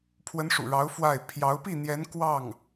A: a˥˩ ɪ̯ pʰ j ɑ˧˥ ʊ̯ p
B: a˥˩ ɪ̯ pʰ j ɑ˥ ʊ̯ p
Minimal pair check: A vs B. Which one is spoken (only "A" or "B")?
A